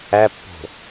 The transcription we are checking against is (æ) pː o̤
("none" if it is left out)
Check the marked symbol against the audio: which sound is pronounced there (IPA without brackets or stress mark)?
æ